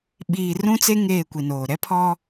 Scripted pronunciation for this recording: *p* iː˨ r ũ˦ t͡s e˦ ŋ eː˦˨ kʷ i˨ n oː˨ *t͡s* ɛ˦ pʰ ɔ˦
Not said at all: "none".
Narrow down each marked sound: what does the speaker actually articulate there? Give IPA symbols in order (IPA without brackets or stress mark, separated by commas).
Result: ɓ, ɾ